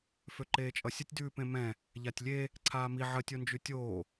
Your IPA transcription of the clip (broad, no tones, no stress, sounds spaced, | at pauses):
f ø ǃ eː t͡ʃʼ ʌ sʲ ə tʲ d ʉː p ẽ m ɛ̃ | ʎ a tʲ lʲ e | ǀʰ aː m i ʕ ə tʲ o n d͡ʒ ʉ tʲ oː